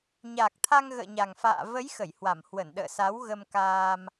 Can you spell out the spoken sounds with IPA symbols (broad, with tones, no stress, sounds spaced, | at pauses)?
ɲ a˨˩ k̚ t̪ʰ a˧ ŋ ɣ ə̰ː˧˨ ɲ a˨˩ ŋ f a̰ː˧˨ v ə˨˦ j x ə˧˩ j h w a˧˩ m h w ə˧˩ n ɗ ə̰ː˧˨ s a˨˦ w ɣ ə˧ m k aː˧ m